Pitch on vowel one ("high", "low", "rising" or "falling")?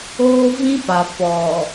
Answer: high